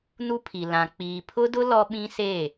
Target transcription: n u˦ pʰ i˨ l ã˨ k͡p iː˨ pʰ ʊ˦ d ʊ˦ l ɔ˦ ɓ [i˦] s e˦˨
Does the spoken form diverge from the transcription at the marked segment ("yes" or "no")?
yes